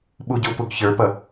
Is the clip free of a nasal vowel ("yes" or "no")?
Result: yes